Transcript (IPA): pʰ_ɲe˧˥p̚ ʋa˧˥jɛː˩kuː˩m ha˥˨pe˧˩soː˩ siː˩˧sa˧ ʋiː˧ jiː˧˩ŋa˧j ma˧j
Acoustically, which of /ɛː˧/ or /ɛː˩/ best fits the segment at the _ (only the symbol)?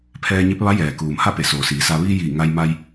ɛː˧